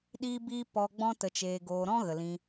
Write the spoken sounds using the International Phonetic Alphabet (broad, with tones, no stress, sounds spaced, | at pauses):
ɗ iː˦ b iː˦ p ɔ˧ ɡ͡b ɔ̃˦ t ə˧ t͡ʃ eː˧ ɡ oː˧ ɾ ɔ̃˦ ɣ ə˨ l ĩ˧